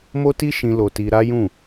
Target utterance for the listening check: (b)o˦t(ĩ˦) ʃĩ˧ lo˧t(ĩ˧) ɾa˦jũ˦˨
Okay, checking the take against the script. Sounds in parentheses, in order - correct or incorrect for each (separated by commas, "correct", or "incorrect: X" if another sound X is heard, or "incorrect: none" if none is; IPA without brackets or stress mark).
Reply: incorrect: m, incorrect: i˦, incorrect: i˧